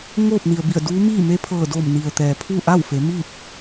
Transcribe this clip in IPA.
ŋ oː˥˨ p̚ n i˩ ə̯ b i˧˩ ə̯ d uː˧˥ m iː˥˨ m e˧˥ pʰ ɤː˧˩ d oː˧˩ m n i˩ ə̯ t̪ ɛː˩ pʰ u˥˨ ʔ a˥˨ w f e˩˧ m iː˥˨ p̚

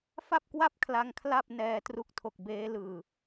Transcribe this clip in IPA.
f a˥˩ p̚ k w a˥˩ p̚ kʰ l a˦˥ ŋ kʰ l a˥˩ p̚ n ɛː˧ t r u˦˥ k̚ tʰ o˨˩ k̚ b eː˦˥ l ɯː˧

